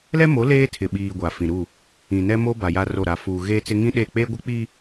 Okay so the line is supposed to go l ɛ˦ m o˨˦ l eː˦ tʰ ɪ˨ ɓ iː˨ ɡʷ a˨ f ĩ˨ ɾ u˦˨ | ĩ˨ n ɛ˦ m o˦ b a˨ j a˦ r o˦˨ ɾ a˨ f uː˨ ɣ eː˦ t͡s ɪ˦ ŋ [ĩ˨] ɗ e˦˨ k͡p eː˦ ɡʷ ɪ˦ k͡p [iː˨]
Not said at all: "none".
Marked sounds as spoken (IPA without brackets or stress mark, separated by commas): ĩ˦, iː˦